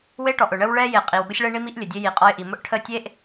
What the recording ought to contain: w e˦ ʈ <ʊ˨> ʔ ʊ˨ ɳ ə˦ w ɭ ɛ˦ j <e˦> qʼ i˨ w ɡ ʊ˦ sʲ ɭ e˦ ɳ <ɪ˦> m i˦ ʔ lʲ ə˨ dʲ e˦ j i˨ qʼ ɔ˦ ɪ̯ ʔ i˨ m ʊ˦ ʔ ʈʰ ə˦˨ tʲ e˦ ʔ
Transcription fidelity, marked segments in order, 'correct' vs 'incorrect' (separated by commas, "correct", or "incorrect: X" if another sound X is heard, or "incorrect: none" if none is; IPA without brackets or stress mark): incorrect: ɔ˨, incorrect: e˨, incorrect: i˦